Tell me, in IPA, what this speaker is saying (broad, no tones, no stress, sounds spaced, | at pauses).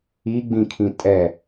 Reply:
i ɡ͡b ĩ kʰ ĩ tʼ ɛ